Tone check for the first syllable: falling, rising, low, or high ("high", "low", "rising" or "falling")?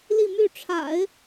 falling